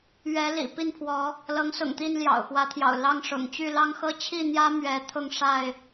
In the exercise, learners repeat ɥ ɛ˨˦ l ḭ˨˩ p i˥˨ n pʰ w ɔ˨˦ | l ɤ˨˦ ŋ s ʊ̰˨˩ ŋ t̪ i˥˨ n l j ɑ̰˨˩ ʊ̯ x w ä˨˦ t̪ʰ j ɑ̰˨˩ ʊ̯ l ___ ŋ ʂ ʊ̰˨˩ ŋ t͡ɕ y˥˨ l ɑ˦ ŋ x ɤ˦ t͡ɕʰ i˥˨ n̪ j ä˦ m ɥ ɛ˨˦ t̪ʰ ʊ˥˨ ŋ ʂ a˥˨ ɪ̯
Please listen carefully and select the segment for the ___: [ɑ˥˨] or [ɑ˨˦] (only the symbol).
ɑ˥˨